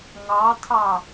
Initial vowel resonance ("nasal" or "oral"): oral